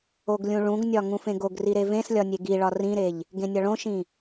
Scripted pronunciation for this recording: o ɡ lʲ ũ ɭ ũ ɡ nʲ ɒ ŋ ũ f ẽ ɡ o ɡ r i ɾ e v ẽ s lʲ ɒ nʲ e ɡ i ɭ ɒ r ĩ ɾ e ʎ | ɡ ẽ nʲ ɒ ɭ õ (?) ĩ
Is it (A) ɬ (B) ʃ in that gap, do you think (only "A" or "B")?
B